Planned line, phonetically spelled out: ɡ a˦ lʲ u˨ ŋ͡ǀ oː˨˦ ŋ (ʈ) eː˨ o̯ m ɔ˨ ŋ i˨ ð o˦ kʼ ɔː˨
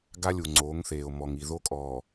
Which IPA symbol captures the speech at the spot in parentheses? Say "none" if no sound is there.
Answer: θ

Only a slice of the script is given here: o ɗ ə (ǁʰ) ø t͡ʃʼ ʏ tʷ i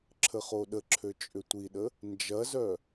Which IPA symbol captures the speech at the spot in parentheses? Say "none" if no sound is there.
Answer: ǁʰ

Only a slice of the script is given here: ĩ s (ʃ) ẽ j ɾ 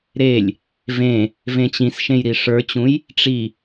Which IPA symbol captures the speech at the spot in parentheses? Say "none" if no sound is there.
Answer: ʃ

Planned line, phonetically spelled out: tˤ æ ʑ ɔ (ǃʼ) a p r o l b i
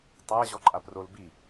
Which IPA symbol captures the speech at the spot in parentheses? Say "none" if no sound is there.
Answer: ǃʼ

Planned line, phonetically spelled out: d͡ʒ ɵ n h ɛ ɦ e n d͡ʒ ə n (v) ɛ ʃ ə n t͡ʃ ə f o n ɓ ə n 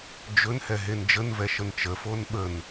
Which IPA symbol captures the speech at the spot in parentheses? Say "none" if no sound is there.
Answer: v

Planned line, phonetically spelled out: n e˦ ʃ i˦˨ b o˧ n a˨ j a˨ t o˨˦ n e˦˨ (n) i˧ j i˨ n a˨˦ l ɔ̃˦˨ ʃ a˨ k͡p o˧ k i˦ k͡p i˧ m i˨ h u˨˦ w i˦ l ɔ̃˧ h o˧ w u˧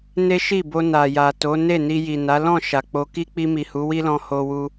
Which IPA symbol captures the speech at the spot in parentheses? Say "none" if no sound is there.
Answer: n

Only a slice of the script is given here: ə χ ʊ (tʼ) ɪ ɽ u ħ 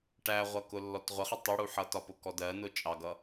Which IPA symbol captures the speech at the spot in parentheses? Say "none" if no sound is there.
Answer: tˤ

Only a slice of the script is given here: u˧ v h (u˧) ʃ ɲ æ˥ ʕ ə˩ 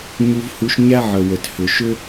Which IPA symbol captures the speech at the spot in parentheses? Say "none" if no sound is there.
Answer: u˧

